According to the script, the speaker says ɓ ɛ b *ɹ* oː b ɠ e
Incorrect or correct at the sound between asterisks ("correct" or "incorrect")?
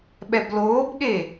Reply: incorrect